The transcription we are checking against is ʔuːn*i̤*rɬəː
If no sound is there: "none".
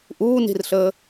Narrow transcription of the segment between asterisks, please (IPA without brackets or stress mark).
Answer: i̤